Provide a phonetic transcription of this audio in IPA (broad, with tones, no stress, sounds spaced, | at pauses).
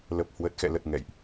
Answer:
l ə˨˩ p̚ h w ə˨˩ t̚ x ɛ̰˧˨ l ə˨˩ t̚ ŋ ɛ̰˧˨ j ʔ